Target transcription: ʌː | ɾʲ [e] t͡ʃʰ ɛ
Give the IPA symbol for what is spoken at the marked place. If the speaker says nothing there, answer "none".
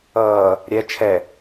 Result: ɛ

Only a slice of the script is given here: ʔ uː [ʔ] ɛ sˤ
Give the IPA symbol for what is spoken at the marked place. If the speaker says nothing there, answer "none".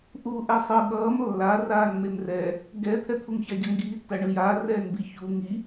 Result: ʔ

